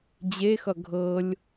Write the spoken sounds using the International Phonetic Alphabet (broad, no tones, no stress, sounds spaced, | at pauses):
d͡ʑ e x ʌ ɡʱ ɤ lʲ